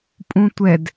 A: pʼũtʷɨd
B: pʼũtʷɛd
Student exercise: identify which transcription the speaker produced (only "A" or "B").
B